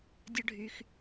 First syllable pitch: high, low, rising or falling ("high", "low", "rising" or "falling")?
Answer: high